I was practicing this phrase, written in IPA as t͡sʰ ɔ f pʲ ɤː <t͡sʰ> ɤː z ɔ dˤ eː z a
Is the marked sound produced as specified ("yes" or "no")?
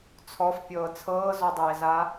yes